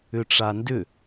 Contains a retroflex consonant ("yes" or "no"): yes